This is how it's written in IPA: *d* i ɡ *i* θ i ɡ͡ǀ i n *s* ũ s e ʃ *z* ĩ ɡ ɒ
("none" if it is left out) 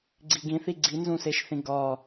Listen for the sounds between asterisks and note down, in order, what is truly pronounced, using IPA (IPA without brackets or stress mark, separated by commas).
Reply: ɡ͡ǀ, ĩ, z, θ